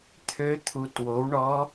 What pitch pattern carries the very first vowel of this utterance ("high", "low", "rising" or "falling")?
rising